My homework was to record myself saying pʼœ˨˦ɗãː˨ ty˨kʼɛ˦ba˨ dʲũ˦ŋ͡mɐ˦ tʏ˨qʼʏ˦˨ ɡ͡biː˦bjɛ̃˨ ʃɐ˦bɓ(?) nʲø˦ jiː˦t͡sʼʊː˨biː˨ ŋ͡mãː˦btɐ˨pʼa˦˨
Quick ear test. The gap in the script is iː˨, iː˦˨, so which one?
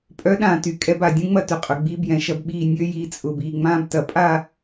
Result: iː˦˨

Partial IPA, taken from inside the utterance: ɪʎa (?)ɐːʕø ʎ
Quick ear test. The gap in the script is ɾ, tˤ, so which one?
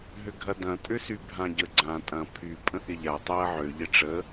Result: tˤ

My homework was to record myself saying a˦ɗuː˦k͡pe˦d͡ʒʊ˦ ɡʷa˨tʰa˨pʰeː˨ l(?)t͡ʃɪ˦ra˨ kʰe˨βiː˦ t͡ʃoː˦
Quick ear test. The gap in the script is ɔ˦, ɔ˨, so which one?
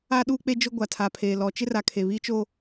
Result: ɔ˨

